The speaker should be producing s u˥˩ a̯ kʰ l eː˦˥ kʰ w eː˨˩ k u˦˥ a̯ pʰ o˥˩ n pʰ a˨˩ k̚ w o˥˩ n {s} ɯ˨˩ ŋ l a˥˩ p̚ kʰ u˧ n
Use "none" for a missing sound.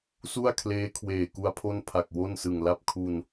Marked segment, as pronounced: s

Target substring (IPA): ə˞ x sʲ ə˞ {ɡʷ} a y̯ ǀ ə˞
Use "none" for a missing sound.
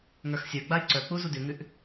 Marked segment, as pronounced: ɡ͡b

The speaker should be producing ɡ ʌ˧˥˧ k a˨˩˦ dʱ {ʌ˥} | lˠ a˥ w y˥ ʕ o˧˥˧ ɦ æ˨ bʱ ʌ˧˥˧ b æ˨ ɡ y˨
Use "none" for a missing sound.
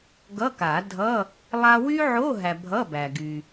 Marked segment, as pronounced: ʌ˧˥˧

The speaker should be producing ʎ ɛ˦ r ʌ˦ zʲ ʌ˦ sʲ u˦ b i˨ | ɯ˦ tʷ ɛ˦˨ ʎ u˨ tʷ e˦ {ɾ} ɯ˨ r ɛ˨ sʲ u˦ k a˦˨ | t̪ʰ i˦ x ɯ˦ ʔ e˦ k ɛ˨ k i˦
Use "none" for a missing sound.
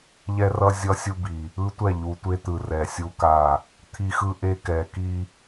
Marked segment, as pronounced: t̪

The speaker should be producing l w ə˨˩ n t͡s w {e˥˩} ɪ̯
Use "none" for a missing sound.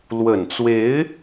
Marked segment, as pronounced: e˧˥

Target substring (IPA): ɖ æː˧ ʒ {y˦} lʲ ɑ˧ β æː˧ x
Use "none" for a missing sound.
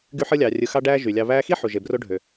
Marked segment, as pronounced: y˨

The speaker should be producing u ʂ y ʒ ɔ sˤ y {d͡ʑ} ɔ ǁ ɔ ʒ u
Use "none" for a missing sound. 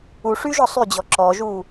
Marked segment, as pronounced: d͡ʑ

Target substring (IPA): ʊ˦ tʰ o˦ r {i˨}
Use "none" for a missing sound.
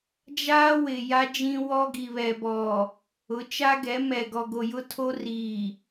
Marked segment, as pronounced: iː˨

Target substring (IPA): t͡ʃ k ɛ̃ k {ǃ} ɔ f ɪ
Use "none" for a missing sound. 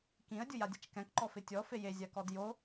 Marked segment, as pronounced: ǃ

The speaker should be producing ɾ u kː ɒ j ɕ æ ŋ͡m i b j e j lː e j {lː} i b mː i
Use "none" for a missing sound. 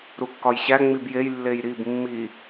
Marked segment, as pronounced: ɾ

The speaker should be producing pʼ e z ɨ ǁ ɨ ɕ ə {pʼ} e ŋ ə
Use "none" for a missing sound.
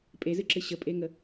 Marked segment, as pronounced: pʼ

